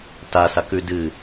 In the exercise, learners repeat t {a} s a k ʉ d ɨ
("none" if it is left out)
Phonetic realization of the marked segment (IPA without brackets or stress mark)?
a